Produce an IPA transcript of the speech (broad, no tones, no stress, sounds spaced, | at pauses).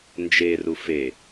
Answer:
n d͡ʒ e r u f e